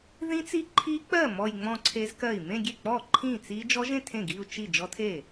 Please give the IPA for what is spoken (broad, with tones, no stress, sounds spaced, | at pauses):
ð ĩ˦˥ t͡s i˦˥ ǃʰ i˦˥ k͡p ɜ˥˩ m ɔ˥˧ j ŋ͡m ɔ̃˥˧ ǀʰ e˦˥ z k ɜ˥˩ i̯ m ẽ˥˧ ɡʲ e˥˩ k͡p ɔ˥˩ ǃʰ ĩ˥˩ t͡s i˦˥ d͡ʒ ɔ˦˥ ʒ ẽ˥˧ tʰ ẽ˥˩ ɡ i˥˧ u̯ t͡ʃ i˥˩ d͡ʒ ɔ˦˥ tʰ e˥˩